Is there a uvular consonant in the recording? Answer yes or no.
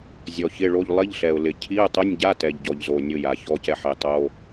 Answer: no